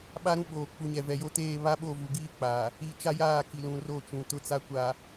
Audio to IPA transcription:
ɓ a˦ ɾ ũ˦ ɓ oː˨ k͡p u˨ ɲ ɛ˨ v ɛ˨ j o˦ t eː˦˨ β a˦ ɓ o˦˨ v u˨ ɡ iː˦ k͡p aː˨ | i˦ t͡ʃ a˦ j aː˦˨ k i˨ l ũ˨ r o˦˨ t͡ʃ ũ˨ t ʊ˦ t͡s a˦ kʷ a˨

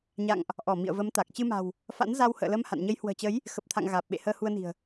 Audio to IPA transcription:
ɲ a̰˧˨ ŋ ʔ | ʔ ɔ˧˩ m ḭ˧˨ ə̯ v ə˨˦ m t̪ a˨˩ k̚ t͡ɕ ɨ˧ m a̤˨˩ w | f a̰˧˥ n z a˧ w h ə̰ː˧˨ l ə˧ m h a̰˧˨ n ɲ ə˨˦ j h w ə̤ː˨˩ t͡ɕ ə˨˦ j | x ə˨˩ p̚ t̪ʰ a̰˧˨ ŋ ɣ aː˨˩ p̚ ɓ ḛ˧˨ h əː˧ h u˧ ə̯ n i̤˨˩ ə̯

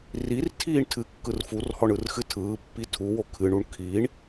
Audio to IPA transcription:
r i r tʰ iː ɳ tʰ ɨ kː ɯ r f u r h ɔ ɳ ɯ r x ɨ tʰ ɯː pː i tʰ u w o kʰ ɨ ɳ u ɳ kʰ i ɳ

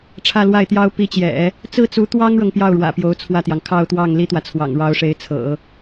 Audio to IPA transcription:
ʈ͡ʂʰ ä˥˧ l w a˥˩ ɪ̯ t̪ j ɑ˥ ʊ̯ p i˧˥ t͡ɕ j ɛ̰˨˩˦ | t͡s ɹ̩˥˩ t͡s u˧˥ t̪ w ɑ˥ ŋ ɻ ɤ˨ ŋ p j ɑ˥˩ ʊ̯ ɻ w ä̰˨˩ p j o˧˥ ʊ̯ t͡sʰ w ä˥˩ t̪ j ɑ˩ ŋ kʰ ɑ˥˧ ʊ̯ t̪ w ɑ˥˩ ŋ l i˥ t̪ w ä˨ t͡sʰ w ɑ̰˨˩ ŋ ɻ ɑ˧˥ ʊ̯ ʂ e˧˥ ɪ̯ t͡sʰ ɤ̰˨˩˦

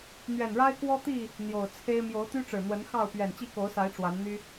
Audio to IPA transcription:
n̪ ɥ ɛ˨˩ n ɻ a˦ ɪ̯ k w ɔ˦ t̪ i˥˨ | n̪ j o˨˩ ʊ̯ t͡sʰ e˦ ɪ̯ m j o˨˦ ʊ̯ t̪ y˦ ʈ͡ʂ ɻ̩˨˩ n̪ w ə˨˦ n x ɑ˥˨ ʊ̯ p ɥ ɛ˨˩ n t͡ɕ i˥˨ k o˨˦ ʊ̯ s a˨˦ ɪ̯ ʈ͡ʂ w a˨˦ n n̪ y˦

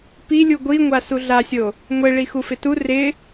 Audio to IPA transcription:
p i lʲ u ɡʷ i ŋʷ a s u ɮ a sʲ o | ŋʷ e ɭ i x u f ɪ t u r ɪ

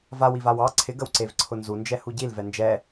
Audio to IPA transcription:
v a w i v a w ɑ ǀʰ ɪ ɡ ə w ǀ e v ǀʰ ʊ n z u n d͡ʒ ɛ h u ɟ i l v ɛ n d͡ʒ ɛ

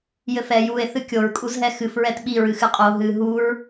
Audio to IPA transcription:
j ɘ f ɛ j u e̯ θ ɨ kʲ o ɹ kʼ u z ɦ ɛ x ɨ f ɹ ɛ t ɓ i ɹ ɨ x ɨ qʼ o ɦ ɨ ɦ u ɹ

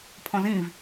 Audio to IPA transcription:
pʰ ɔ̃ z ĩ v

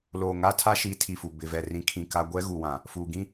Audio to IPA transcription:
l oː˨ ŋ a˦ tʰ a˦ ʃ i˨˦ tʰ i˨ f u˨ b ɪ˨ v ɛ˨ r ĩ˨˦ kʰ ĩ˨ k a˦ ɡʷ ɛ˦ ɣ u˨ w ã˨ | f uː˨ ɡ ĩ˦

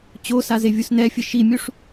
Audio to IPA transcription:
t͡ɕ o s a z e vʲ u s n ɛ fʲ ɘ ʃ i mʲ u ʂ

